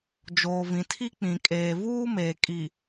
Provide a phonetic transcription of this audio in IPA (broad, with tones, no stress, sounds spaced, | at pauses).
d͡ʒ oː˨ v ĩ˨ tʰ i˦ k͡p ĩ˨ kʼ eː˨ v uː˦ m eː˨ kʼ i˨